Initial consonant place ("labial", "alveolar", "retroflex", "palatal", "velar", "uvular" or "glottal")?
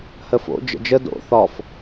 glottal